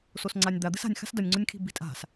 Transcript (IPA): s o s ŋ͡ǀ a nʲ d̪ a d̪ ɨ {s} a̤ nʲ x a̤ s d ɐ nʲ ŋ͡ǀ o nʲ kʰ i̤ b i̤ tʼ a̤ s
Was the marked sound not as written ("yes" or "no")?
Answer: no